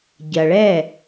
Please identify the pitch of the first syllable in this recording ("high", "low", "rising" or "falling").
low